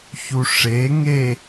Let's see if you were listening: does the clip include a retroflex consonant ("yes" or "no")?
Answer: yes